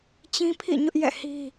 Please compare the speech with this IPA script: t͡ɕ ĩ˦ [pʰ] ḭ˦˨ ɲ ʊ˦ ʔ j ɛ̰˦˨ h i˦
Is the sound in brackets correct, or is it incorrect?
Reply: correct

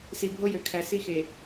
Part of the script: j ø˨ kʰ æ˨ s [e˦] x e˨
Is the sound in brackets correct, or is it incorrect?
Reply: incorrect: i˦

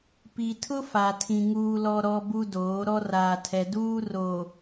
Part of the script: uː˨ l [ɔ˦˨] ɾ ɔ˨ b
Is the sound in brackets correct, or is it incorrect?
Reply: incorrect: ɔ˨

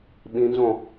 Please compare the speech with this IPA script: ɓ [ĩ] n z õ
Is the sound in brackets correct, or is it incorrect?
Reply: correct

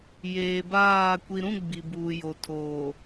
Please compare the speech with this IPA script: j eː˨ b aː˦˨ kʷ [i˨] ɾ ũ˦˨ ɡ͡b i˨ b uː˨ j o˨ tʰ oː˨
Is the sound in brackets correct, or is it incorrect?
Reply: correct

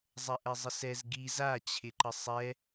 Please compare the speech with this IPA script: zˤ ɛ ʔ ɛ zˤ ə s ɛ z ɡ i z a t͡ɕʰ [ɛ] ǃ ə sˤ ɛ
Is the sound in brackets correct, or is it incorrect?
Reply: incorrect: ɪ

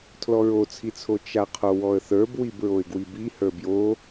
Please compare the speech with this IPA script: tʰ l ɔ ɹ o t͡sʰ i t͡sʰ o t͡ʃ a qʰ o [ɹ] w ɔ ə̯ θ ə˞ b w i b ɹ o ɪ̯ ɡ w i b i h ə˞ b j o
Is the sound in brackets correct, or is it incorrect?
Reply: incorrect: none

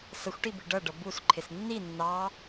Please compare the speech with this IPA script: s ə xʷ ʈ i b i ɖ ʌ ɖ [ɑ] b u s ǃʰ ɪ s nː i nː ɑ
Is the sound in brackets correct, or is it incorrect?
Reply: incorrect: ʌ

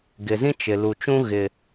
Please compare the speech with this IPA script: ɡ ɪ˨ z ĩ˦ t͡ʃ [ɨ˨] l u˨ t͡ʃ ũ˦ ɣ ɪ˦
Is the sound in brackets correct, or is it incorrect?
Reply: incorrect: ɪ˨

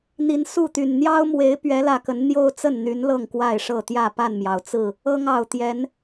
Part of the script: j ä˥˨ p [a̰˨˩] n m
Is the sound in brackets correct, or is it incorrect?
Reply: incorrect: a˥˨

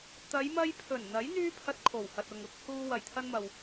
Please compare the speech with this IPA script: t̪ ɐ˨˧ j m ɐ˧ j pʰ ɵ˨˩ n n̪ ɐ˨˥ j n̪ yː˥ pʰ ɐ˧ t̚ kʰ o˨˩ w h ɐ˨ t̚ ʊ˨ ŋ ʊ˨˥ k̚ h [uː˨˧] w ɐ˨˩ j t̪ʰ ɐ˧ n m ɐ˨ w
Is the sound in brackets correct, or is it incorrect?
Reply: incorrect: uː˧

